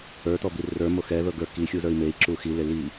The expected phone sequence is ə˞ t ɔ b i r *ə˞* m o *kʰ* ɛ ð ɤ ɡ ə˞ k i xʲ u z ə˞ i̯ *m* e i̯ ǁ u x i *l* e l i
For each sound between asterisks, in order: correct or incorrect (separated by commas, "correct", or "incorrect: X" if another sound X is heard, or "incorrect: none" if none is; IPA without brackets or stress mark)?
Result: correct, incorrect: x, correct, correct